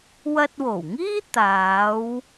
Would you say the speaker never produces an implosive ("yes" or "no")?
yes